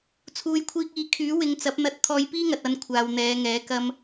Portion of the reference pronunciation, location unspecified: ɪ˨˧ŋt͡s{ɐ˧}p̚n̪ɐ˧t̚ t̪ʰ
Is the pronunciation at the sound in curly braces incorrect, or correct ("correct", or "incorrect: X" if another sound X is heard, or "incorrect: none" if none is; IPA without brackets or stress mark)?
incorrect: ɐ˨˥